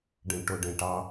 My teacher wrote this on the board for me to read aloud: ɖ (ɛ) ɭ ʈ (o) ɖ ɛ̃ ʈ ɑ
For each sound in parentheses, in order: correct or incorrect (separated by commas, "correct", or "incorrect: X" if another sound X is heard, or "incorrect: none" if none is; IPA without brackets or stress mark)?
incorrect: ɛ̃, correct